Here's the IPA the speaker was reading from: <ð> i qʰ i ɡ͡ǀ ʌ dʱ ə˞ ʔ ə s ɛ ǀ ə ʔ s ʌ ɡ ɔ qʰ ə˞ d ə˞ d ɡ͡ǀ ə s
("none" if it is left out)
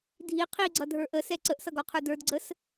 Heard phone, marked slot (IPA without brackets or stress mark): dʱ